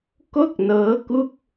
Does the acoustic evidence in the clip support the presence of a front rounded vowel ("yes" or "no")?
no